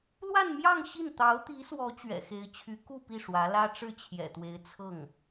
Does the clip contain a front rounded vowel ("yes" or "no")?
yes